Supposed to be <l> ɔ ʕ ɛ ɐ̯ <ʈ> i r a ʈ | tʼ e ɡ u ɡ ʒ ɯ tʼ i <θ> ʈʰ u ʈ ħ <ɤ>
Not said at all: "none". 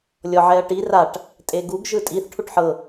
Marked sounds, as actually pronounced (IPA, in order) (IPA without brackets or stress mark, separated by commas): lʲ, ʈ, θ, ɤ